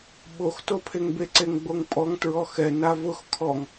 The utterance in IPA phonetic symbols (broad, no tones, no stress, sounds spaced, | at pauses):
ɓ o x t o pʰ e ŋ b e ǀ e ŋ ɡ͡b o ŋ pʼ ɔ ŋ t ɹ ɔ x ɛ n a v ʊ x kʰ ɔ ŋ